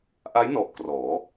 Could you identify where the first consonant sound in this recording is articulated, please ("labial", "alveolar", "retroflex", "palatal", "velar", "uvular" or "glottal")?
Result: glottal